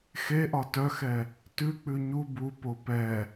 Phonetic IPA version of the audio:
x e ʔ ɒ t œ x ɛ | t ʉ k͡p ʉ ɲ u b u p o p ɛ

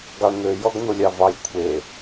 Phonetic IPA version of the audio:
ɡ ɑ ɳ n̪ ø j ɔ ɡ n̪ o lʲ ɑ v ɑ j kʷʰ e

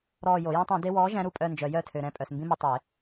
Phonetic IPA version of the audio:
ɾ ɔː˦˨ j o˨˩˦ j æ̃˦ tˤ ũ˨˩˦ d e˦ w ɔː˨˥ ʒ æ̃˨˥ ɾ u˨ pʼ œ˦˨ n d͡ʒ œ˨˩˦ j œ˦˨ tʰ ø˨ ɾ ɛ̃˦˨ pʼ œ˨ s m b ĩ˦ m u˨ tˤ e˨˩˦

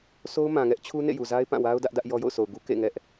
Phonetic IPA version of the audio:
sʰ o˦ ʊ̯ m ã˨ ŋ ɛ˦ ʔ t͡ɕʰ u˦ n ḛ˦˨ j u˨ z a˦ ɪ̯ p ã˦˨ w a˦ ʊ̯ d ä˦ ʔ d ä˦ ʔ j ɔ˦ j o̰˦˨ ʊ̯ s o˨ ʊ̯ ɡ u˦ k ḛ˦˨ ŋ ɛ˦ ʔ

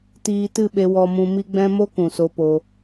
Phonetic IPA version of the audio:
t iː˧ t ɨ˦˨ ɓ e˧ w ɔ˧ m ũ˧ m i˦ ɡ͡b ɛ̃˦ m o˦ k ũ˨ s o˧ p o˧

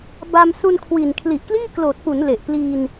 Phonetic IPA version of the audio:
b a˧ m s u˧ n kʰ w i˨˩ n kʰ l i˨˩ ʔ k l iː˥˩ k l oː˨˩ t̚ p u˩˦ n l e˨˩ ʔ p l iː˧ n

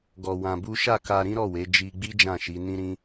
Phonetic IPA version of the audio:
ɡ ɔ˧ w ã˧ b u˦ ʃ a˦˨ k a˧ ɾ ĩ˦ ɾ ɔ˦˨ w e˨˦ d͡ʒ i˧ ɡ͡b i˦ d͡ʒ ã˦˨ ʃ i˨˦ n ĩ˦ ɾ ĩ˦

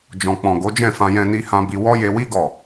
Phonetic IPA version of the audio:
d͡ʒ ɔ̃˨ k͡p ɔ̃˨ ɡ o˨˦ d͡ʒ ɛ̃˦˨ f ã˧ j ɛ̃˧ n i˧ h ã˧ b i˧ w ɔ˦ j e˧ w i˦ ɡ ɔ˦˨

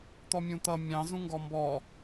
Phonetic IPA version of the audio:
t̪ ɔ mʲ ũ t̪ ʌ mʲ ɑ̃ z ũ ŋ ɡ ɔ m b ɔ

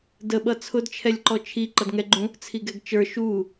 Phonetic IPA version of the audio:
d ə ɓ ʌ t͡sʰ ʊ d t͡ʃʰ ɛ lʲ ǃ ɔ t͡ʃʰ i ǃ ʌ d ŋ ɛ ɡ͡ǃ ũ | t͡sʰ i ɡ ɛ ɡ t͡ʃ ə˞ ʃ u

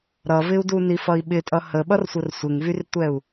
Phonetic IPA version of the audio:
ɾ ʌ v ɪ u̯ d u n i f ʌ i̯ ɓ ɪ tʼ ʌ h ə ɓ ʌ r sʷ ə r sʷ ɪ ŋ v y r tʷ ɛ u̯

